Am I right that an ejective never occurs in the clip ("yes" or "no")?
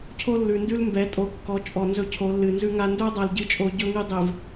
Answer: no